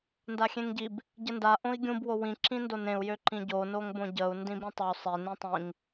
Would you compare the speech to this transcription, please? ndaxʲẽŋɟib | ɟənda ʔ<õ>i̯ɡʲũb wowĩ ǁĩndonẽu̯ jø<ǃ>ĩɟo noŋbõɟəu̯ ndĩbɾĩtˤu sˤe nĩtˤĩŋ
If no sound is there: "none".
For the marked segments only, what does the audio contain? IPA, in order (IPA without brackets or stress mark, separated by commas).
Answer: õ, ǃ